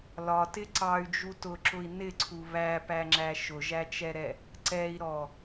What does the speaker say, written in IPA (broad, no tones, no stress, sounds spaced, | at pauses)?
l ɒ t ɪ ǀ ɑ y̯ d͡ʒ u t ʊ ǁ ʊ i̯ n ɪ ǀʰ u β æ p æ ŋ͡ǁ æ ʃ ʊ ʒ æ t͡ʃ ɛ ɾ ɛ | ǀ ɛ i̯ ɾ ɔ